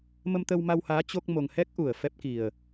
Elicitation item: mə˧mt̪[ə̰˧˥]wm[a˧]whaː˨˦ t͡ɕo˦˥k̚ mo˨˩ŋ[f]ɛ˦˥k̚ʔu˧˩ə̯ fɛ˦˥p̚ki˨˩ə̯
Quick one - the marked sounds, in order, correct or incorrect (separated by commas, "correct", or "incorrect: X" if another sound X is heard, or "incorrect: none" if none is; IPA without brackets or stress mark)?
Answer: incorrect: ə˧, correct, incorrect: h